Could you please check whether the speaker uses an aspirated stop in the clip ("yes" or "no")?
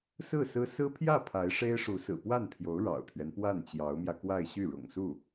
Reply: yes